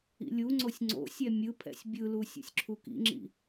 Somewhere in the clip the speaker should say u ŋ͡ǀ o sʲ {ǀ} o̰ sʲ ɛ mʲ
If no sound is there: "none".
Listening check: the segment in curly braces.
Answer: ŋ͡ǀ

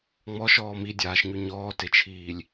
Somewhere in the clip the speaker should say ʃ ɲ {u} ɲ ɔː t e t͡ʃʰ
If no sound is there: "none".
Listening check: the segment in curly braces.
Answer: y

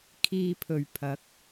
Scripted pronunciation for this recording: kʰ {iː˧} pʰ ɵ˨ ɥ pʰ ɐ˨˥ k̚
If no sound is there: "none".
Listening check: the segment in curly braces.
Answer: iː˧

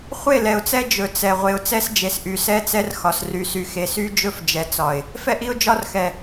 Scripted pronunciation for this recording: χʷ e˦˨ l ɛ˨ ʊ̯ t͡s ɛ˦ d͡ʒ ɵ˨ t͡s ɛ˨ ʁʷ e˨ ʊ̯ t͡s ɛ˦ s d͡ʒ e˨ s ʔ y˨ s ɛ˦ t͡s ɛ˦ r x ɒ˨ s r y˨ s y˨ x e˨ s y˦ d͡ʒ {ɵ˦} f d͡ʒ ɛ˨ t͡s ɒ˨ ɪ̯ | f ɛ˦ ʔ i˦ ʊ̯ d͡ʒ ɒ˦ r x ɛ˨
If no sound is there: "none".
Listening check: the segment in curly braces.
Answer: ɵ˦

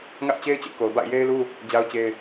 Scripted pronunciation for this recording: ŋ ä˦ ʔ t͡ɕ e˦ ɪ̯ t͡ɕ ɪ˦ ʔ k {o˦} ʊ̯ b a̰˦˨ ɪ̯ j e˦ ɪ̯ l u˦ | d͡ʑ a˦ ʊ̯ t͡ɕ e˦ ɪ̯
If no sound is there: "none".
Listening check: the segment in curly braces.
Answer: o˨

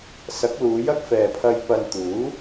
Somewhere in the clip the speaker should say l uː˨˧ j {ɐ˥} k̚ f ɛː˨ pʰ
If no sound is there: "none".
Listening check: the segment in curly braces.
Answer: ɐ˥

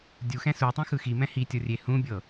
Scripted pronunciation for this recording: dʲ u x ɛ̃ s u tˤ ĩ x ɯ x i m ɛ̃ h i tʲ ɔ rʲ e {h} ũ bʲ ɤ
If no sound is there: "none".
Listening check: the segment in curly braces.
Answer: h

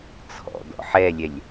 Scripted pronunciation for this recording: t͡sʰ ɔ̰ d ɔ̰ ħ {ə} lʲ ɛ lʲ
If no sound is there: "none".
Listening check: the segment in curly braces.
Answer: ɛ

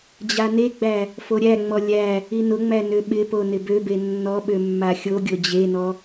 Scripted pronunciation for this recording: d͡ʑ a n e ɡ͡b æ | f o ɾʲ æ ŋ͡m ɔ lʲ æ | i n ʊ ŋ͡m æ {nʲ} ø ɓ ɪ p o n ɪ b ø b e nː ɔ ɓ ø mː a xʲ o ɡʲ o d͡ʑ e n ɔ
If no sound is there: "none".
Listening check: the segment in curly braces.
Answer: n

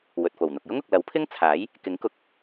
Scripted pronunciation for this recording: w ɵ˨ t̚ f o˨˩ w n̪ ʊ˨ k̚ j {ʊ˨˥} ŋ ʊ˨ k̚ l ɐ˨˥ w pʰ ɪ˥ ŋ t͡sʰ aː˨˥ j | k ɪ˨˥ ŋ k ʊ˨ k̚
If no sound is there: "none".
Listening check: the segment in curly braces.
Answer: ʊ˥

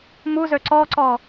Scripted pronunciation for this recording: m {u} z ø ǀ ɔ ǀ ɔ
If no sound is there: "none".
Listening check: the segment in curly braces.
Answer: u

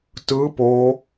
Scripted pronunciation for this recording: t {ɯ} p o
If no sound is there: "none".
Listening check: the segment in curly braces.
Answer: ɯ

